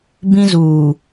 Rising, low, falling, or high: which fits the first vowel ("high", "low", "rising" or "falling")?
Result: high